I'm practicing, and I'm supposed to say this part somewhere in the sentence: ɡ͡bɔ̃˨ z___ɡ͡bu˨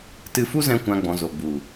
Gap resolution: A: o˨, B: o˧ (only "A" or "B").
A